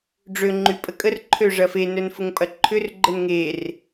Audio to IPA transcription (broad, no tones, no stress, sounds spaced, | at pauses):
ɖ͡ʐ ø ŋ͡ǃ y pʼ ə kʼ ə r ǃʰ ø ʐ ɐ f e n œ n f ʊ ŋ pʼ ɐ ǃʰ ʏ r ɡ͡ǃ ə n ŋ e r